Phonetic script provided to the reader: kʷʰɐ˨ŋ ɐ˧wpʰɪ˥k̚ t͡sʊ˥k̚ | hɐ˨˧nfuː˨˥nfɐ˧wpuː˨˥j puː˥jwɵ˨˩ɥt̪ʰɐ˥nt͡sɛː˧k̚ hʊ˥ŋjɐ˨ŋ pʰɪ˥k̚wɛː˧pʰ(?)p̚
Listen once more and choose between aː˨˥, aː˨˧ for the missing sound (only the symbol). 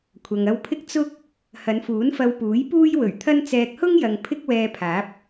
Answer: aː˨˥